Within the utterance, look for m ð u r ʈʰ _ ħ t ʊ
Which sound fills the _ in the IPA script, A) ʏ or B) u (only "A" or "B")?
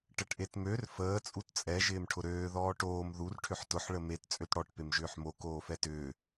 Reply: A